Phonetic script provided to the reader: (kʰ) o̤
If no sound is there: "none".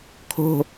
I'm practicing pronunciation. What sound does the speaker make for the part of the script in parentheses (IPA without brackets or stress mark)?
kʰ